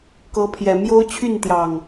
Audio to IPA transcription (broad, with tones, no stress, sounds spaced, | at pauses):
k ɤ˨˦ pʰ j ɛ˨˩ m j o˦ ʊ̯ t͡ɕʰ y˥˨ n t̪ j ɑ˨˩ ŋ